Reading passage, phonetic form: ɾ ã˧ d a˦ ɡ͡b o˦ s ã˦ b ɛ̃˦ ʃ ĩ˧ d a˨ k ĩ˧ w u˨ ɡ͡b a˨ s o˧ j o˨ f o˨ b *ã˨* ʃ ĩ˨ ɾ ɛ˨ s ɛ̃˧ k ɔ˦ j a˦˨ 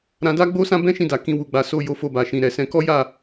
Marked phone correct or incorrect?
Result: incorrect